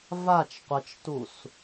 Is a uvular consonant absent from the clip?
no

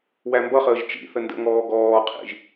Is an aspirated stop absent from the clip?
no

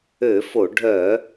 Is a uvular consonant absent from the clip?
yes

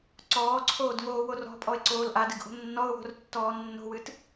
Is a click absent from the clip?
no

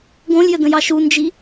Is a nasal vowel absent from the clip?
no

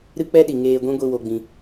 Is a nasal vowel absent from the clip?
no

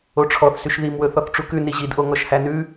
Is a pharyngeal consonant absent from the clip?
yes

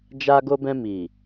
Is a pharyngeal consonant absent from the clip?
yes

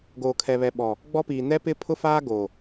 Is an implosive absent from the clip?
no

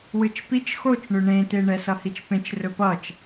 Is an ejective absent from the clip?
yes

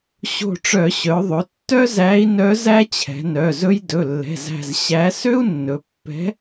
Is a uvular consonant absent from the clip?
yes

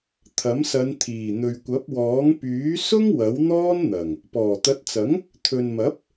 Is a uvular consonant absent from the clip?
yes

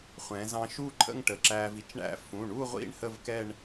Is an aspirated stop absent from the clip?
no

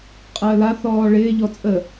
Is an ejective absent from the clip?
no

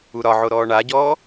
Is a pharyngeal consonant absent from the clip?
no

